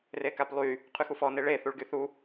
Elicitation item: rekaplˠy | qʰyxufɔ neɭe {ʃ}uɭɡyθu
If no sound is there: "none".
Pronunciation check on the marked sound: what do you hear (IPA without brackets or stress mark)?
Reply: θ